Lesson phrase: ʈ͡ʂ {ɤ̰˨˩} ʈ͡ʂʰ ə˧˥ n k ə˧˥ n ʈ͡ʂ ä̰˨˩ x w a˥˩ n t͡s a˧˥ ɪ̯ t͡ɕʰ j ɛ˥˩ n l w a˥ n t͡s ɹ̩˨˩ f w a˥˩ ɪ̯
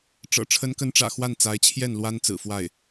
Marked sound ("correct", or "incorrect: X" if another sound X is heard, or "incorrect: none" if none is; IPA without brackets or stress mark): correct